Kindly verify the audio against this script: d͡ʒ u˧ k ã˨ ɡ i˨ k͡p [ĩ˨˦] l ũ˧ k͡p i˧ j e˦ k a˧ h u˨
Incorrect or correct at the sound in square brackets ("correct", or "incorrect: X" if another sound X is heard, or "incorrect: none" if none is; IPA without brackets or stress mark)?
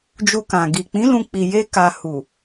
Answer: correct